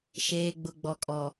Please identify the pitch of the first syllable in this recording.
low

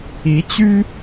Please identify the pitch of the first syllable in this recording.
rising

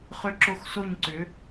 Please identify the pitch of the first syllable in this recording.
falling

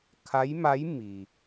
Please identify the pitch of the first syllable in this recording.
rising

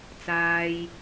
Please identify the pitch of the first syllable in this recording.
low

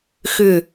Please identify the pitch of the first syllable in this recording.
falling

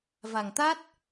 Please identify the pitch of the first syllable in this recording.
low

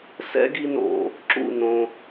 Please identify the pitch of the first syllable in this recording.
high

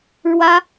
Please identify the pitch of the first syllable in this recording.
high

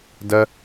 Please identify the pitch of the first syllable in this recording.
high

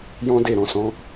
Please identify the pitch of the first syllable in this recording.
high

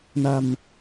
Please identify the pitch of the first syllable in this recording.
low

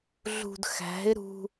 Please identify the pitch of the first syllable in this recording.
low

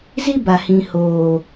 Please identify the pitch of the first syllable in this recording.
high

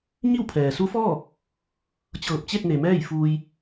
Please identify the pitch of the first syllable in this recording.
falling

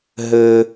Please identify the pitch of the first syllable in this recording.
high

